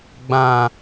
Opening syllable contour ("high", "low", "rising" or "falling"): low